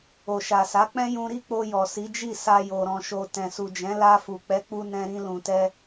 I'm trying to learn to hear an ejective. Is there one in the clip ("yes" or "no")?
no